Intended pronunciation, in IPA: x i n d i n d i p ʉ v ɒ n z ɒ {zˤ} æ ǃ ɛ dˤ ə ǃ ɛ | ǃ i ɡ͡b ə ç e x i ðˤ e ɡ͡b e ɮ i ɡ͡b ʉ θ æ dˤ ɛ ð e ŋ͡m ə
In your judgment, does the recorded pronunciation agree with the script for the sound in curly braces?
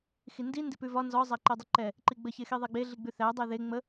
yes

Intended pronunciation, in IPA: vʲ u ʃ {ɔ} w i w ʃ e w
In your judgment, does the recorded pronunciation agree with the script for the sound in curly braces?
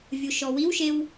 yes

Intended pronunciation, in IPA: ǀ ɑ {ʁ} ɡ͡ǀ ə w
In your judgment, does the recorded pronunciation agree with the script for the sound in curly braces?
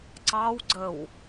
no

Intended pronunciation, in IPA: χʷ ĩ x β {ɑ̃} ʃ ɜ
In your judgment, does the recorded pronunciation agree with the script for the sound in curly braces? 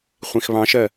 yes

